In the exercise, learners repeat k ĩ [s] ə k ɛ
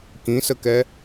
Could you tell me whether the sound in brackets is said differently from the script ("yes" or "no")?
no